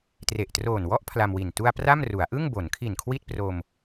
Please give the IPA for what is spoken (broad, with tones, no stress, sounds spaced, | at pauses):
t r e˨˩ ʔ t r oː˨˩ n w ɔ˦˥ ʔ pʰ l a˧ m w i˨˩ n t u˧ a̯ p r a˥˩ m r u˩˦ a̯ ʔ ɯ˥˩ ŋ b o˩˦ n kʰ i˨˩ n kʰ w i˥˩ t̚ p r o˧ m